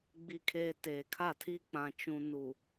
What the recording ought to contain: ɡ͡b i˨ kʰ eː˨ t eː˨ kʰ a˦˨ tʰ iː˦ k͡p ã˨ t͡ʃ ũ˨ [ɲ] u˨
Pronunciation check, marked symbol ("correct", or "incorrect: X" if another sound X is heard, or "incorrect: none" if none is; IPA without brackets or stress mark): incorrect: n